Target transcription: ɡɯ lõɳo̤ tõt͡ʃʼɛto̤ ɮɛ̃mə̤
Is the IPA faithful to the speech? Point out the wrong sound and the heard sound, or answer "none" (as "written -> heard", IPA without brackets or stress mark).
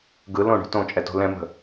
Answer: ɮ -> l